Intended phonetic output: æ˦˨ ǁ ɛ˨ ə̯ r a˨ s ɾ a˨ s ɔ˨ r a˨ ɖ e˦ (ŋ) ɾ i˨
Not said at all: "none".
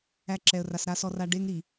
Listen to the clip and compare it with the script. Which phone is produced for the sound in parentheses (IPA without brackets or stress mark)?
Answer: ŋ